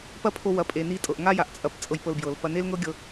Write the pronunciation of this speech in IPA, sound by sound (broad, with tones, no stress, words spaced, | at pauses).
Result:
pɐ˦pʰo˧ wɐ˨ pʼe˨ni˧tʼɤ˨ʔ ŋa˦ja˨ʔt͡sʼɐ˧p t͡sʼɤ˧jpɤ˧lbjɤ˨l pɐ˧ne˦lŋɤ˦ɡʲɤ˧